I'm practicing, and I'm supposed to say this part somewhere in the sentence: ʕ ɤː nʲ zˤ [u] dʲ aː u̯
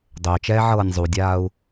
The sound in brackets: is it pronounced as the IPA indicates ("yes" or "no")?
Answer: yes